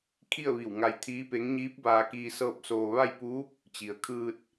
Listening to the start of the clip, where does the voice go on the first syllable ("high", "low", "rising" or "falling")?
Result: falling